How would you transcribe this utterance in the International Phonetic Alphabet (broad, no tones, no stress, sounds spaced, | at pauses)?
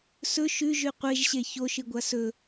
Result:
s ɵ ʃ ʉ ʒ ʉ qʷ e ʒ ɕ e ç o ʃ ɨ ɡʷ a s ɵ